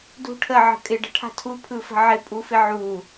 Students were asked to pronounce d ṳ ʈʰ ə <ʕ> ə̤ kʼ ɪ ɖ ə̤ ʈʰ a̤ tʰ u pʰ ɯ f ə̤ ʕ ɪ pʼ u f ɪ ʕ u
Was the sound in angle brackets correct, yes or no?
yes